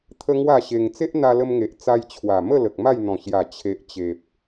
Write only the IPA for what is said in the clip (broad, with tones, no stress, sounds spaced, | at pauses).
t̪ʰ ə˦ ŋ w a˥˧ ɕ e˧ ŋ t͡s e˦ ʔ n̪ a˧ l ə˧ m ŋ e˨ ʔ t͡s a˧ j t͡ɕʰ w a˨˩ m ə˥˧ l ə˨ k̚ m a˥˧ j n̪ ɔ̃˨˩ ɕ j a˨˩ t͡ɕʰ e˨ ʔ t͡ɕ e˨ p̚